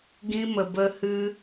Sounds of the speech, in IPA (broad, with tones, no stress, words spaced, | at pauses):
ɡĩ˦mə˧bə˦hɨ˦